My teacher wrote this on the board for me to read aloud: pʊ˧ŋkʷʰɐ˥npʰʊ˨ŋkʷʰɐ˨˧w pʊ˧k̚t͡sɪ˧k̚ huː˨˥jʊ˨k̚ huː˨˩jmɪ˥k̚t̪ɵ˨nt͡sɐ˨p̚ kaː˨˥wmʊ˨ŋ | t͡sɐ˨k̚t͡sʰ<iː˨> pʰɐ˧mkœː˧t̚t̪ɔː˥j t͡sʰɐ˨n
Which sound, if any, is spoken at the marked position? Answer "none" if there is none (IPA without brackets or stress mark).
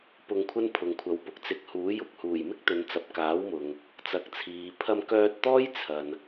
iː˨